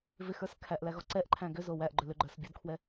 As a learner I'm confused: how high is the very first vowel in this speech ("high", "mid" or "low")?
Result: high